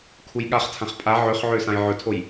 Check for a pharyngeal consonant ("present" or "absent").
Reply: present